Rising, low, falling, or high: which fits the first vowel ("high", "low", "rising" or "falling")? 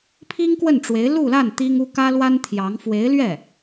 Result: high